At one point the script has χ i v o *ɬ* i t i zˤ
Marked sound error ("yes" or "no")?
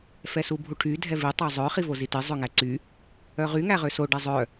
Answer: yes